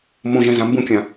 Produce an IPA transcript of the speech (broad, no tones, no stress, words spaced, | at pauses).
mõʒɛ̃zã mbũkʲã